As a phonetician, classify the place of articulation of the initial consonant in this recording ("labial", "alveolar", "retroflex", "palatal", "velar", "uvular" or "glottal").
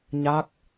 palatal